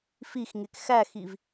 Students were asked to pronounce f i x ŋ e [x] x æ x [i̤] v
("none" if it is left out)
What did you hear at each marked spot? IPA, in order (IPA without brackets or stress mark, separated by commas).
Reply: k, i